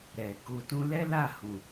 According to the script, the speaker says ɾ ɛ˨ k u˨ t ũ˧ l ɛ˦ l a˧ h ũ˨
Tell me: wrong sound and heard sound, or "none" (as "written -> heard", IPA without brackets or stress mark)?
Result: a˧ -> a˦˨